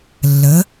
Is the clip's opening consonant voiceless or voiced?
voiced